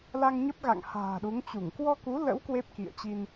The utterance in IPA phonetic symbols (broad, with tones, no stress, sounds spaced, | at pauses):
l a˧ ŋ ɲ ə˦˥ p̚ ɣ a̰˧˨ ŋ h a̤ː˨˩ ɗ u˨˦ ŋ t͡ɕ u˧˩ ŋ k w ɔ˧ k u˨˦ l ə̰˧˥ w k w e˦˥ p̚ k ḭ˧˨ ə̯ t͡ɕ i˧ n